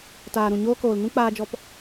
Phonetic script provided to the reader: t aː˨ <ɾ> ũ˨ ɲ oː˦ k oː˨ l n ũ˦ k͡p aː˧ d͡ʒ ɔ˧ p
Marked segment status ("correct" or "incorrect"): correct